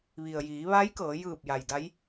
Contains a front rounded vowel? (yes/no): no